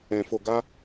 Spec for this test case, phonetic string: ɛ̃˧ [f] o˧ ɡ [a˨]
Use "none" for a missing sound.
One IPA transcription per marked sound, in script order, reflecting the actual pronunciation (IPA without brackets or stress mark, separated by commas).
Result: f, a˦